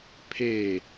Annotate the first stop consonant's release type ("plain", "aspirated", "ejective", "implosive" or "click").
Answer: aspirated